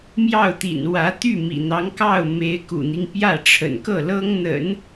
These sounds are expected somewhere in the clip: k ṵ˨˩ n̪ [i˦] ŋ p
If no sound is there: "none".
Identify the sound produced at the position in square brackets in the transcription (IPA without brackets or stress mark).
i˦